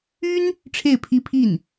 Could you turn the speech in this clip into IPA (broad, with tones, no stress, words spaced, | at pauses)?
y˥n | ʈ͡ʂʰe˥˩ɪ̯pʰi˥pʰi˥˩n